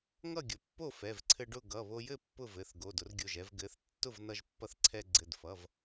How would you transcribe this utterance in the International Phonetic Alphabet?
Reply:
ŋ ʌ˥˨ ɡʲ ʊ˩˧˩ pː o˥˨ f ɛ˩˧˩ v ǀʰ ɘ˧ ɖ ʊ˥˨ ɡ ʌ˩˧˩ β o˧ j ɘ˥˨ pː ʊ˥˨ v ɘ˩˧˩ θ ɡ o˩˧˩ d ʊ˧ r ɡʲ o˩˧˩ ʒ ɛ˧ v ɡ ɘ˩˧˩ θ tː ʊ˥˨ v n ʌ˧ ʒ pː ʌ˧ θ ǀʰ ɛ˧ ɡ͡ǀ ɘ˩˧˩ d f ʌ˩˧˩ v

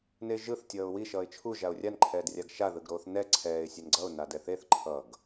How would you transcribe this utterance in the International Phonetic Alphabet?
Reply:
n e ʒ ɯ θ tʲ ʌː ʊ̯ w i ʃ ʌː ɪ̯ t͡ʃʰ u ʒ a ʊ̯ rʲ a n ǃʰ ɛː d rʲ a ɡ ʃ a ð ɯ ɡ ɾ oː θ n ɛ ǀʰ ɛː ɪ̯ sʲ ɛ n ɡ͡ǀ ʌ ʊ̯ n a d ɛ θ e θ ǃʰ ʌ ɡ

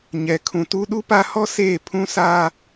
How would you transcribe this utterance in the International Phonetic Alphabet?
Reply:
ɲ ɛ˨ kʰ ũ˨ t u˦ ɗ u˦ p a˦ h ɔ˦ s eː˦˨ pʰ ũ˦ s aː˦

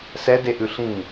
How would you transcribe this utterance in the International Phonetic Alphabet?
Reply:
s ɛ d e ʔ ʉ ɬ ĩ

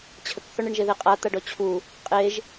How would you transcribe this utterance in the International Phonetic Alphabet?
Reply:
t͡ɕʰ ə k θ ɔ ɳ e ɳ ʒ e ð e qʼ a t̪ a ɖ ɔ t͡ɕʰ u | qʼ e ʒ

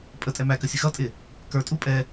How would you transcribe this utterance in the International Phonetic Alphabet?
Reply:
pʼ ə tʼ ɛ m æ k ə sʲ ə x ʌ tʼ ɪ | k ə˞ tʼ u pʼ ɛ

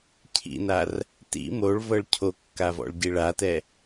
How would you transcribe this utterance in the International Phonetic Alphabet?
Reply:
cʰ ḭ n a r | t ḭ m o ɭ v ɤ ɭ cʰ o kː a v ɔ̰ ɭ ɟ i ɭ a t ɛ

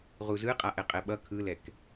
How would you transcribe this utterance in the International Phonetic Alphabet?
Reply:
ʁ u z ɯ qʼ a ʔ ɛ qʼ ɛ ɓ ʌ kʰ ɯ l ɛ k

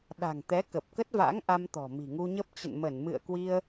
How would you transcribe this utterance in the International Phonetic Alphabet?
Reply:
ɗ a̤˨˩ ŋ t̪ ɛ˨˦ k ə˨˩ p̚ k ə˦˥ t̚ v a̰˧˥ ŋ ʔ a˧ m t̪ ɔ̤˨˩ m i̤˨˩ ŋ u˧ ɲ ə˦˥ p̚ t͡ɕ ə̰˧˨ n m ə˧˩ n m ɨ̰˧˨ ə̯ k w i˧ ə̯

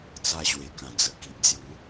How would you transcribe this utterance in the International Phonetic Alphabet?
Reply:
t͡s a˧ ɕ w e˨˩ k ã˨˩ d͡z ə˨˩ k i˨ ʔ d͡z j u˨˦

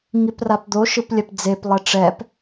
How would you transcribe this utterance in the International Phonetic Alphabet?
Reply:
ŋ i p r a p d̪ o ʃ ɯ p lʲ ɛ p d͡z e p lˠ ɛ ʈ͡ʂ ɛ p

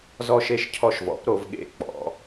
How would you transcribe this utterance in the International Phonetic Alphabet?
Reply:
z ɔ˦˨ ʃ e˦˨ ʃ cʰ ɔ˦˨ ʃ v ɔ̰˩˥ p ɾ o˩˧ v ɠ ḛ˦˨ k͡p ɔ̰˩˧

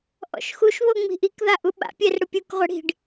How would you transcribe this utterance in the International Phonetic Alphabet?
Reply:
ʔ ɔ̰ ʃ x u ʃ β o ŋ͡m i̤ ʔ i k ð a ʔ u ɓ a̰ pʲ ɛ r ɽ ʊ pʲ u k ʁʷ ɛ ɽ i̤ ɖ

